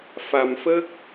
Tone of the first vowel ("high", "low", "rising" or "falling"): low